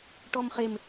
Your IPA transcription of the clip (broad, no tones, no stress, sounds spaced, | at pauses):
ʈ ɔ m χ e m